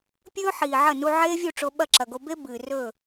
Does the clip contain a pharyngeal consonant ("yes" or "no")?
yes